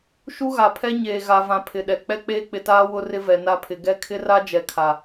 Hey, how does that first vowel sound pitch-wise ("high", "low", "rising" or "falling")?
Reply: high